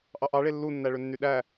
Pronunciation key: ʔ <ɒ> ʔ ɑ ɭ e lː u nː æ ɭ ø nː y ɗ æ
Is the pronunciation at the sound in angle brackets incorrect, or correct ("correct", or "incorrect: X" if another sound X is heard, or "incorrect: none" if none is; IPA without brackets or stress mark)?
incorrect: ɑ